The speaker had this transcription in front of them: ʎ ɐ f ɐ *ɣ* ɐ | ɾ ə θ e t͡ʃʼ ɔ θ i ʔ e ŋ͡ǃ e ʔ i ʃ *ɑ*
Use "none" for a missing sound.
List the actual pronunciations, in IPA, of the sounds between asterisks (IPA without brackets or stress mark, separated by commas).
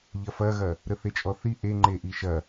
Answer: ɣ, ɐ